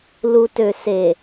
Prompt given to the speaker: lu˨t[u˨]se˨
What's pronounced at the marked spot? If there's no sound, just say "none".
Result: ø˨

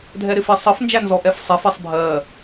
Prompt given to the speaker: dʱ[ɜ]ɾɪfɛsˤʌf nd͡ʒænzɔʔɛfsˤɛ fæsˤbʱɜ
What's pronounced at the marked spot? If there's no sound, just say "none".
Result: ɛ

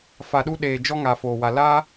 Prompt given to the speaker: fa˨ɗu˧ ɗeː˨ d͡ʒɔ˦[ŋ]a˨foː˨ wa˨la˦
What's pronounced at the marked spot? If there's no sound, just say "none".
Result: ŋ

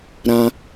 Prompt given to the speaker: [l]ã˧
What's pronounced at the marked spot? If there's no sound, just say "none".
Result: ɾ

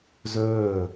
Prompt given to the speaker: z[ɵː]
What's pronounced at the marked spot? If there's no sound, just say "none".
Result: ɵː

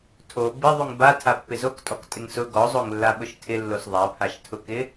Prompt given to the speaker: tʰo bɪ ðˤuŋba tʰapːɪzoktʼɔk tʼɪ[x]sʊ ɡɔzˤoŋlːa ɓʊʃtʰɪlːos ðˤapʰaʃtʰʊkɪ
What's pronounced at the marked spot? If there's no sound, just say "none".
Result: ŋ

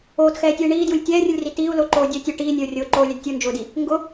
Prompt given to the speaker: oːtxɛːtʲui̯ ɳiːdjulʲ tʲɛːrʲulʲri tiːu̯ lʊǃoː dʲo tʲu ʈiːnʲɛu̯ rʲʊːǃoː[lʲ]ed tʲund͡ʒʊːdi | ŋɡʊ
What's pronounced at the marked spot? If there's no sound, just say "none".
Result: lʲ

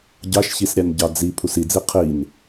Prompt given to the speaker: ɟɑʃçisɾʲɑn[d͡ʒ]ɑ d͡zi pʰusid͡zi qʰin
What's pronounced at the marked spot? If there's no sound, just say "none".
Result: ɟ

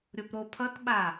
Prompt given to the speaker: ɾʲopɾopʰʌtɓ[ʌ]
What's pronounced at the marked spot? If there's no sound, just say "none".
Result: a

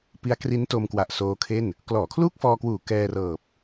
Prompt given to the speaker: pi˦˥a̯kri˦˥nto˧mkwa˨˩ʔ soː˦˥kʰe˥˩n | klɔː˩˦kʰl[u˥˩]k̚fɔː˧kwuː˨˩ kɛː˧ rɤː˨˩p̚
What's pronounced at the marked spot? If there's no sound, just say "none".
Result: uː˥˩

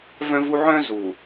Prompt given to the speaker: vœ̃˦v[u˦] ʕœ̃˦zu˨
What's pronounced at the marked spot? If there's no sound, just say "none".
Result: u˦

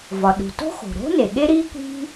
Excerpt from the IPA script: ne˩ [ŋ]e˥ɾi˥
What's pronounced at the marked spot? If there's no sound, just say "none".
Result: ɠ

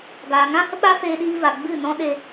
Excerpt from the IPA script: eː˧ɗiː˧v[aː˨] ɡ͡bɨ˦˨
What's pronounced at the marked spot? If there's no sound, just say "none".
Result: a˨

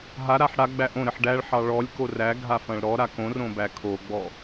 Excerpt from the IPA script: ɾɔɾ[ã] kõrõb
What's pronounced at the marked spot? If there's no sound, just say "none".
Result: a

